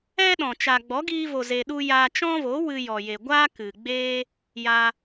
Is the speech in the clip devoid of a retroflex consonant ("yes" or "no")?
yes